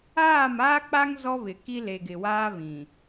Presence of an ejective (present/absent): absent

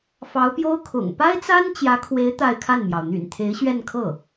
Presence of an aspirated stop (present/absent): present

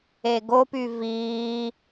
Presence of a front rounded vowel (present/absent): present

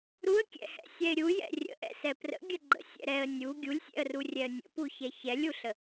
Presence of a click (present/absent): present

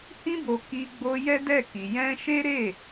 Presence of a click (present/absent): absent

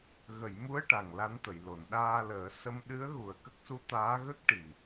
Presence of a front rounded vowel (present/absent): absent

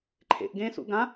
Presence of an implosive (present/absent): absent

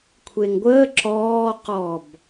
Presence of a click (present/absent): present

